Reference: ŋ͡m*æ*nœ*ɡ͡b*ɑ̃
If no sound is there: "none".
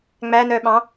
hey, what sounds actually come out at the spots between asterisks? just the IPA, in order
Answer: æ, ɓ

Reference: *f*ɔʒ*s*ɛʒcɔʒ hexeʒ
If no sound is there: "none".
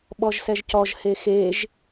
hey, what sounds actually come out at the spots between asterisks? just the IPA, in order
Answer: ɓ, s

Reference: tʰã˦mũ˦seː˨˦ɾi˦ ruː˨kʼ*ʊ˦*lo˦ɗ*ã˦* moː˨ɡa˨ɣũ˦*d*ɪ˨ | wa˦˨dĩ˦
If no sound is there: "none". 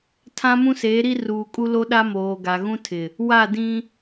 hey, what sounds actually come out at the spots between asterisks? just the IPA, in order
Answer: u˦, a˦, tʰ

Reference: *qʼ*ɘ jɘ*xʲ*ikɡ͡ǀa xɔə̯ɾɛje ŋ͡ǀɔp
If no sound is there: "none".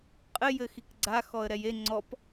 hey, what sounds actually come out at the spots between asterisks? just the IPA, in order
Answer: qʼ, x

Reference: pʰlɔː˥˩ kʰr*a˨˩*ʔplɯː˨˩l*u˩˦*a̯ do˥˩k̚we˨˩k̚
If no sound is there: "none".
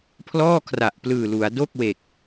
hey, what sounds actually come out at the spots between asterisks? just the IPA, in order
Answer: a˨˩, u˩˦

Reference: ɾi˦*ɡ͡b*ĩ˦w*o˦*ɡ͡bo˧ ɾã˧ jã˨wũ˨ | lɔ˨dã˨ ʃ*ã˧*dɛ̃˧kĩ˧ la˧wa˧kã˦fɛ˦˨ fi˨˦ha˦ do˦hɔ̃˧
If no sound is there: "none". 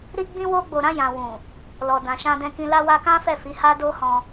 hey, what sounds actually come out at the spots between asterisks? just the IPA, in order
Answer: ɡ͡b, o˦, ã˧

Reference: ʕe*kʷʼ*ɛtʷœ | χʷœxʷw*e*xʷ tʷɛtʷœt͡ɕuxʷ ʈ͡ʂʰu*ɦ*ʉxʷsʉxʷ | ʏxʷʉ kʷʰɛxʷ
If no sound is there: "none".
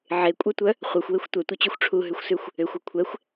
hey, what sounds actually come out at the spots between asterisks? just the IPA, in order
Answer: kʷʼ, e, ɦ

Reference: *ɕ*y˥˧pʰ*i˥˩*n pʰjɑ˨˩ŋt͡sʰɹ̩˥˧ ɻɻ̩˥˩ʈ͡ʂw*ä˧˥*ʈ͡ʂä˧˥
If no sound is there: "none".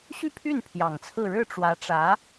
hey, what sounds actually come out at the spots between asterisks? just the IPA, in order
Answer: ɕ, y˥˩, ä˧˥

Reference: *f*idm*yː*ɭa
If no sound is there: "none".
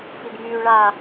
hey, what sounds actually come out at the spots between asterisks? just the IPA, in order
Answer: f, yː

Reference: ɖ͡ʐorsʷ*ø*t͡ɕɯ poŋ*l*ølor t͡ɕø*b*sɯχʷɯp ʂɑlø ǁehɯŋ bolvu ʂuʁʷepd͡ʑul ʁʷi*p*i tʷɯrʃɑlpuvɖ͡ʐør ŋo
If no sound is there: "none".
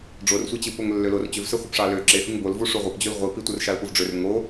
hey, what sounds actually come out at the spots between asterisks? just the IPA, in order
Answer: e, lː, v, p

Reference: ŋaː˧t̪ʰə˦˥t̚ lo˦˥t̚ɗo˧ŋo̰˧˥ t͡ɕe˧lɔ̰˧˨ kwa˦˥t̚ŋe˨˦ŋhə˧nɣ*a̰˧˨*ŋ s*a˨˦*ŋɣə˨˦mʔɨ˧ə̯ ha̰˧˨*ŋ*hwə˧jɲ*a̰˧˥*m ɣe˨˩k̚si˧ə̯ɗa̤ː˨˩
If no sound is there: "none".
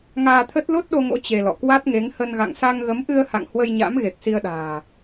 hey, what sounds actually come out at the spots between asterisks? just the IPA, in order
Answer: a̰˧˨, a˧, ŋ, a̰˧˥

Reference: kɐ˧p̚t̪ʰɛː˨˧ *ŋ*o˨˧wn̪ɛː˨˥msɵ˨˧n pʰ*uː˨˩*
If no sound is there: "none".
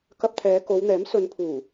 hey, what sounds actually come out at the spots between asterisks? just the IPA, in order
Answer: k, uː˨˩

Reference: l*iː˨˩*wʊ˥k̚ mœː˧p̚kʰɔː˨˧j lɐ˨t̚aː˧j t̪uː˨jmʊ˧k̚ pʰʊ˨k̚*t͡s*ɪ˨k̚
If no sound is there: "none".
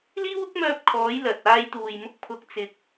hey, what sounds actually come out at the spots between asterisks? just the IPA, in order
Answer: iː˥, t͡s

